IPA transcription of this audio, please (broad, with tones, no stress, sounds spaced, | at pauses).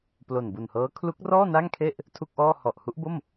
p l o˨˩ n b u˨˩ n h ɤː˦˥ kʰ l u˦˥ k̚ r ɔː˥˩ n a˥˩ ŋ kʰ e˥˩ ʔ | tʰ u˥˩ k̚ ʔ ɔː˥˩ h ɔ˨˩ ʔ h u˦˥ ʔ b o˥˩ m